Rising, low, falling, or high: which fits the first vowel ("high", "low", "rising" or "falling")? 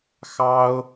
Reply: high